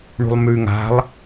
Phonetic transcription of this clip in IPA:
ɳṳlˠmʉ ŋa̤lˠ

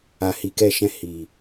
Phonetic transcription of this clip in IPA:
a˨ hi˨kɛ˧ʃɛ̃˧ hi˨

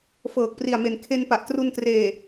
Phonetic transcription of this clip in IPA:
fɤː˨˩k̚pri˨˩a̯me˨˩n kʰe˧npa˨˩ʔtru˧n treː˨˩

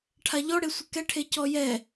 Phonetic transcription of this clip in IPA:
ʈʰaʎɔɽe sʷɪkɛʈʰe cɔjɛ

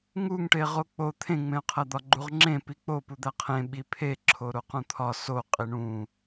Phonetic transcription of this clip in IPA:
ŋuŋʈeʁo k͡po t̪ʰẽŋ͡mẽʊ̯qʰæ d̪ɒɡ͡ǃuʁŋ͡ǁẽ pik͡po pud̪æqʰẽ ɓipʰe ǁʰoɾoqũt̪ʰɒ so qʼiɳũ

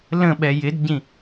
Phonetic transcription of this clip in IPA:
lə̃ɓɛ jɪdɟĩ

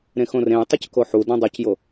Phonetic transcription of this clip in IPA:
ɾẽxõrẽjtˤyc koħu dõdˤucjo

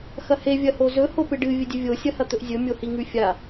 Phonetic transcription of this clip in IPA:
xɐhe vʲɐhozɵ hopɨɖɨ vʲɨdʲɨvʲo sʲɐhɐt̪ɵʔzʲɵ mʲohiŋʉfʲa

